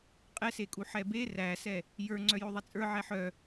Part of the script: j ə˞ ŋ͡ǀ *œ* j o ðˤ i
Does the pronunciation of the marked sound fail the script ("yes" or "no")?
no